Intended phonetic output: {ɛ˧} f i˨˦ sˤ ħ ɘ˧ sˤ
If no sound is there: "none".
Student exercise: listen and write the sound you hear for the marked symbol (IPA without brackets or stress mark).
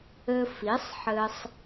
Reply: ɘ˧